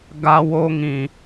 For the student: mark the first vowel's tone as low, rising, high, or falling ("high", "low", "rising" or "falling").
high